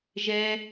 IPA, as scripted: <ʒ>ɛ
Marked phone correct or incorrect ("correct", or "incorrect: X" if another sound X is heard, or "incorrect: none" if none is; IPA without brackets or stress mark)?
correct